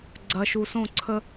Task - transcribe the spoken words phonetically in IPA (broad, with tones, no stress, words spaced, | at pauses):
ɡ͡ǀɐ˨ʃu˨sõ˦˨ǀʰə˦